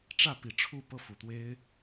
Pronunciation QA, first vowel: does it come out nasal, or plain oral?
oral